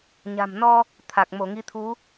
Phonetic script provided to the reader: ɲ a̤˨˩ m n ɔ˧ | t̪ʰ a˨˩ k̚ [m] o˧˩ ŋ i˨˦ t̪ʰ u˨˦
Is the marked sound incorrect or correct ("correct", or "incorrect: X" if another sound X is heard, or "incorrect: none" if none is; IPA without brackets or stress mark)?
correct